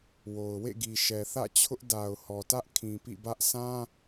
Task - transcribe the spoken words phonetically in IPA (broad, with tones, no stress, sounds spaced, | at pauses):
w o˨ ʊ̯ w ḛ˦˨ ɡ i˨ ʃ ɛ˨ θ ä̰˦˨ t͡ɕʰ ʊ˦ ʔ d a˨ ʊ̯ h ɔ˨ t ä˦ ʔ kʰ ĩ˨ p ḭ˦˨ b ä˦ ʔ sʰ ã˦